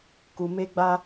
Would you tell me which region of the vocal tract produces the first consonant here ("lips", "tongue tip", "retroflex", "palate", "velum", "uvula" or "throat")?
velum